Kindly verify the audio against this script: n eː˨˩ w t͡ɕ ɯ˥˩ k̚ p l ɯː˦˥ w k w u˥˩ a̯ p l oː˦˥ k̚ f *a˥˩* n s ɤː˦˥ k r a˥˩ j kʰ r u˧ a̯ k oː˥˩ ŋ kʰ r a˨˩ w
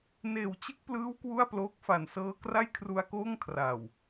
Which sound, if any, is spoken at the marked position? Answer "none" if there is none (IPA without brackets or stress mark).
a˨˩